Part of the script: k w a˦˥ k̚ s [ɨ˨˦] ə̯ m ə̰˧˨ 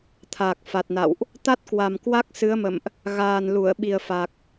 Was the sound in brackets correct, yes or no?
yes